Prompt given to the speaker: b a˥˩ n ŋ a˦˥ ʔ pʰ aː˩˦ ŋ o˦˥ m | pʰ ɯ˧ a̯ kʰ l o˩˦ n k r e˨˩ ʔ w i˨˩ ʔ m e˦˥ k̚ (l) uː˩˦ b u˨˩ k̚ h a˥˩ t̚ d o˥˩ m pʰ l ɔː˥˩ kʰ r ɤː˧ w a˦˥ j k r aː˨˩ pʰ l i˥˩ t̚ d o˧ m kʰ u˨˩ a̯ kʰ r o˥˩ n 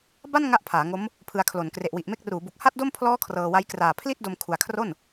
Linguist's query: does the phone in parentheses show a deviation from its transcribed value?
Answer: yes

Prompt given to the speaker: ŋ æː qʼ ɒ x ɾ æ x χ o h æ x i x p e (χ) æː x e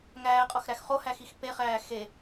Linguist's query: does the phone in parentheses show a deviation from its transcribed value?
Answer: no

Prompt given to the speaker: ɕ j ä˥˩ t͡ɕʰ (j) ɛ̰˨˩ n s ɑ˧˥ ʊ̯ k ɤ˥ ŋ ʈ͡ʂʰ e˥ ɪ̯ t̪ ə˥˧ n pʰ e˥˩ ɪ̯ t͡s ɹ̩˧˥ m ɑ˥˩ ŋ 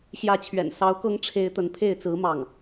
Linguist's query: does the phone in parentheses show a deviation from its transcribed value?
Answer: yes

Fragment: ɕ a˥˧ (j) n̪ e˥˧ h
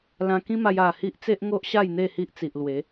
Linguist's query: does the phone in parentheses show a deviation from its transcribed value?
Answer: no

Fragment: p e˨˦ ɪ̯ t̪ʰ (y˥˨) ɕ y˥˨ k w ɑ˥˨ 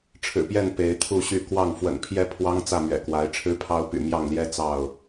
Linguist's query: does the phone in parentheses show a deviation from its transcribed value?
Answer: yes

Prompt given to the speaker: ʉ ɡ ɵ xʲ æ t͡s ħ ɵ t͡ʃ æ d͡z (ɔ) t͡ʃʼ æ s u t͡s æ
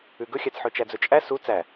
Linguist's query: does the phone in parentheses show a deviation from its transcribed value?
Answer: yes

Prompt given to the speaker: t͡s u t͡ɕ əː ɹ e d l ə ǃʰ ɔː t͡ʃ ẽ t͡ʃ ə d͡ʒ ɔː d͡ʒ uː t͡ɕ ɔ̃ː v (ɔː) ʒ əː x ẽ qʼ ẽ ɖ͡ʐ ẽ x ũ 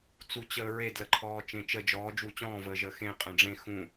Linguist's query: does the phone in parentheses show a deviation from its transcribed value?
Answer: yes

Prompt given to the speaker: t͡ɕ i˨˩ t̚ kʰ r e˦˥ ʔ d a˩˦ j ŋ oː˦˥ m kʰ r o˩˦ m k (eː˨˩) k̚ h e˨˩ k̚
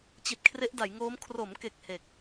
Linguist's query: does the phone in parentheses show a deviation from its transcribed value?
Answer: yes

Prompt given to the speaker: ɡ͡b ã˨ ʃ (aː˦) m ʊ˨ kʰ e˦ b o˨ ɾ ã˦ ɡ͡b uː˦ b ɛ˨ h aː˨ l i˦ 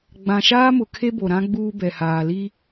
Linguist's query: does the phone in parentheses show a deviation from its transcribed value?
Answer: no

